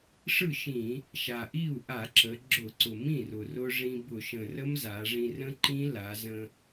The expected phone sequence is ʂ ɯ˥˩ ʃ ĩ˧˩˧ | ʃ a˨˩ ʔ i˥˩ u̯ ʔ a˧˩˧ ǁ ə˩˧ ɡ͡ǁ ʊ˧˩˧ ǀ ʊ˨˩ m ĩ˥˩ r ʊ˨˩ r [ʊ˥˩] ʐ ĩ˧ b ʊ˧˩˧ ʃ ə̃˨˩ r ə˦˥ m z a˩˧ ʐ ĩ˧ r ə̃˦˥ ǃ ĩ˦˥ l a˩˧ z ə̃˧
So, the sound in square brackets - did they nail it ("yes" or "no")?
no